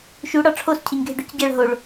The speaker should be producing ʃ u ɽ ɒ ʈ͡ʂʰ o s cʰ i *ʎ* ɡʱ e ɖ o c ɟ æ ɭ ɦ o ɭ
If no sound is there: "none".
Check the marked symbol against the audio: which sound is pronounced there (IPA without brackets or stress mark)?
ɲ